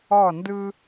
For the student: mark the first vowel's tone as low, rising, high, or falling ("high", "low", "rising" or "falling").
falling